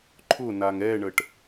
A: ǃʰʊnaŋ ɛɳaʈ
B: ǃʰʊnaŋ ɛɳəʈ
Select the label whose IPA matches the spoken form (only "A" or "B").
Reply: B